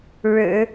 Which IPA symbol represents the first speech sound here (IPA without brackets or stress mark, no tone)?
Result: ɻ